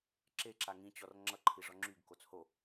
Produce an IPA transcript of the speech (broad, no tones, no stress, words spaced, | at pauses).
ǁeǁa ŋĩt͡ɕɔr ŋ͡ǁʌǃʰi ʐɔŋ͡ǁyɡkot͡s ho